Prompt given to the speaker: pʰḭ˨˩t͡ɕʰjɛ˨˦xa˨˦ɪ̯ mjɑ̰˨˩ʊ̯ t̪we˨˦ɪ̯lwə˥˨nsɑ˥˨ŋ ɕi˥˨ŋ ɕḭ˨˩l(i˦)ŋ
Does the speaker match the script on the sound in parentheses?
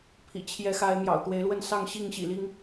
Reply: yes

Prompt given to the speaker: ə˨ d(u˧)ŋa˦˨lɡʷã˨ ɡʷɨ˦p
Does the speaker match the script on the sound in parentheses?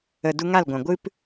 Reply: yes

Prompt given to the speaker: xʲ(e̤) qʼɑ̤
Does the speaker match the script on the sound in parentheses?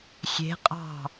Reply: yes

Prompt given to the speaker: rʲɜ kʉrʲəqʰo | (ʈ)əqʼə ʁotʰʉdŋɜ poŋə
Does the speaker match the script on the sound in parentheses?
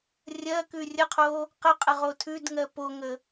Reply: no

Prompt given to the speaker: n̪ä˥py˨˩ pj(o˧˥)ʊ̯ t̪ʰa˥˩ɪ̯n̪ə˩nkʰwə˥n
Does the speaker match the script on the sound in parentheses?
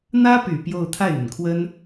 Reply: no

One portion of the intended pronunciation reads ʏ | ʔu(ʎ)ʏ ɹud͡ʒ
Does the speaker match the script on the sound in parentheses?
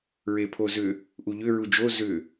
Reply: yes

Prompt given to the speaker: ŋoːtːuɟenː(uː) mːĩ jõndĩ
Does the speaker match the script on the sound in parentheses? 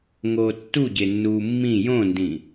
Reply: yes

